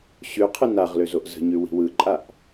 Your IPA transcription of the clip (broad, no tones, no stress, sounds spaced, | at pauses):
ɕ ʉ qʰ ɯ n a ʁ l ø z o ʔ z ə̤ ɲ ʉ w i̤ w ɯ ǃʼ a ʔ